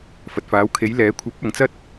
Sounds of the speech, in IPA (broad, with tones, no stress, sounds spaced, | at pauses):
f ɐ˨ t̚ f aː˨˥ w kʰ e˨˥ j l ɛː˨˥ kʷʰ ɐ˨˥ p̚ ɐ˨ ŋ t͡s ɐ˥ t̚